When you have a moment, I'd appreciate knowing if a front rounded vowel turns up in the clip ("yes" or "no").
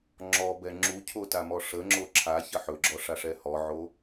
no